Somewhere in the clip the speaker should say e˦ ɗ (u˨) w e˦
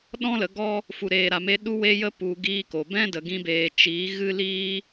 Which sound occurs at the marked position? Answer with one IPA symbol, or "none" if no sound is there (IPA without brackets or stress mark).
u˦